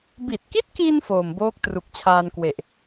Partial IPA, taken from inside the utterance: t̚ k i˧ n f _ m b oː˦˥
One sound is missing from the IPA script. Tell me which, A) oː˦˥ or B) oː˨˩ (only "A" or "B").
B